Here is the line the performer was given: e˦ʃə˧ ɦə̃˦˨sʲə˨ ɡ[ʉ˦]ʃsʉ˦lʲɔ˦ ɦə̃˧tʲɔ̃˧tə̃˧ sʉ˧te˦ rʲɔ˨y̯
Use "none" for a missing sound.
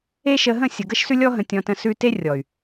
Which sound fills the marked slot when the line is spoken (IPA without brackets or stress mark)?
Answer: ə˦